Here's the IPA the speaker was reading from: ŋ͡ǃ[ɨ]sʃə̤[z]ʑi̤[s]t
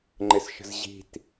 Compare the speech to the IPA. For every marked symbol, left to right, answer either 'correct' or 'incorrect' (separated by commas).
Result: incorrect, correct, incorrect